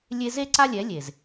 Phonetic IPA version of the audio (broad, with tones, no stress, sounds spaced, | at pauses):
lʲ e˧ z e˦ ǀ a˦ lʲ ɛ˨˦ lʲ e˨ z